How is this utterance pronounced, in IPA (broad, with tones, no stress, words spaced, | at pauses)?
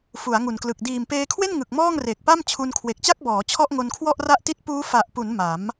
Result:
fu˩˦a̯ŋu˨˩nklɯ˨˩k̚ diː˨˩mpeː˧kʰwe˥˩n ŋɯ˨˩k̚mɔː˥˩ŋ re˨˩k̚pa˥˩mt͡ɕʰu˧n kʰwe˨˩k̚t͡ɕa˥˩k̚ bɔː˩˦ t͡ɕʰɔ˥˩ʔŋo˧nkʰwɔ˥˩ʔ ra˥˩ʔti˥˩t̚ puː˦˥fa˨˩ʔpu˩˦n ma˩˦m